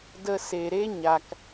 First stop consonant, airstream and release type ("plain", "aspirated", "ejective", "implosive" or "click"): plain